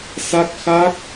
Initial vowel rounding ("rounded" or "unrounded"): unrounded